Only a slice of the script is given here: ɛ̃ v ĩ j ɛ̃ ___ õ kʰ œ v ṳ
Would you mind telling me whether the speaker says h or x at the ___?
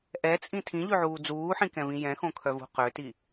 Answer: x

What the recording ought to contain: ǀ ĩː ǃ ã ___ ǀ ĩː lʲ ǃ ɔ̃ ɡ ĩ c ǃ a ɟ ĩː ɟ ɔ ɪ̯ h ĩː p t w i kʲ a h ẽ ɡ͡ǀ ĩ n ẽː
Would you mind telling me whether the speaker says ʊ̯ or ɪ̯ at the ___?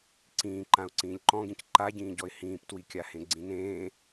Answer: ʊ̯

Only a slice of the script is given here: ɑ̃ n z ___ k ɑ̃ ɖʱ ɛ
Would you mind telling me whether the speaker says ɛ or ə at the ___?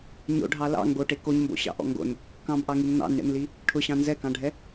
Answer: ɛ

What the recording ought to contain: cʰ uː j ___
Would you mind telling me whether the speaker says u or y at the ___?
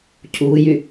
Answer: y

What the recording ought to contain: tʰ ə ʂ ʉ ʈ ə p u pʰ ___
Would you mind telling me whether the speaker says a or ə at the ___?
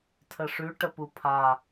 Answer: a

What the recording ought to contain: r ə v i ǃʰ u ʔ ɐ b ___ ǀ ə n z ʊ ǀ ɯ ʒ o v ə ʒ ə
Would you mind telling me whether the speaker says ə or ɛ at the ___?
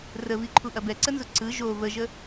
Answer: ɛ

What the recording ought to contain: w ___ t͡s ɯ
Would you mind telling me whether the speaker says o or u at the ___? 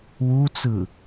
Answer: u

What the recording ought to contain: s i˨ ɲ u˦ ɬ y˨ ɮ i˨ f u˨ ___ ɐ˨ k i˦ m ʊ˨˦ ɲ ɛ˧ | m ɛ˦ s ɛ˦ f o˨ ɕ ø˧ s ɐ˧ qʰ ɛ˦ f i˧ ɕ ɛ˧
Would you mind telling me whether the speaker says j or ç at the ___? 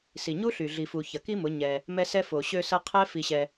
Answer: ç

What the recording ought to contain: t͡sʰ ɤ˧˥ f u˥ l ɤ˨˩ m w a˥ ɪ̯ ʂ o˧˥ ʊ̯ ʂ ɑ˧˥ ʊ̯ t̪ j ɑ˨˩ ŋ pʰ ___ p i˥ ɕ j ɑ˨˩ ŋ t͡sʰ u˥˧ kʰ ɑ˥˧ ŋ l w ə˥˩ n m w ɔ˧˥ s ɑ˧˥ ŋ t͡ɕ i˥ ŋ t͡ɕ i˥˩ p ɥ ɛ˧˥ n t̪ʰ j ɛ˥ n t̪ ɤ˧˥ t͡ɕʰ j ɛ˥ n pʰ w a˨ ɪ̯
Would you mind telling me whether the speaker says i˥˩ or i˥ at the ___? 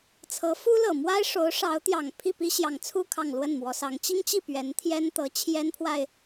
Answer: i˥˩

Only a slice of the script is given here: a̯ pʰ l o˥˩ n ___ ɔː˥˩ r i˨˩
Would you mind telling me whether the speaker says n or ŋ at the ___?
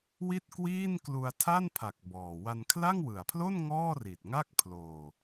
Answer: ŋ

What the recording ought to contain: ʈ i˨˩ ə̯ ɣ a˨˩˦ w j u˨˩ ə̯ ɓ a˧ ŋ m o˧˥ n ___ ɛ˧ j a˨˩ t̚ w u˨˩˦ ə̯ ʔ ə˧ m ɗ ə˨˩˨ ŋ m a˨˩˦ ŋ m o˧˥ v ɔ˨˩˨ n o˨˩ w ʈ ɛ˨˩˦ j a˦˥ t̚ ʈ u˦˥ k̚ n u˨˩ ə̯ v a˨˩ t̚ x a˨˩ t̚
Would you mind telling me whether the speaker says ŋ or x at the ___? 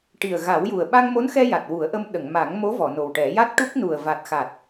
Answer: x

